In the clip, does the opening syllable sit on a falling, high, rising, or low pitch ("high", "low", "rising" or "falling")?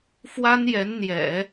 high